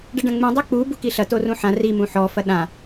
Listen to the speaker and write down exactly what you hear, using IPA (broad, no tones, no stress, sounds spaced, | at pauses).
ɖ ɛ ɖ ɐ̃ ŋ͡m ũ dˤ e k͡p u b u k i ɬ ɐ t o r ũ ħ ã r i m ũ ħ ɔ f ɐ ɗ ã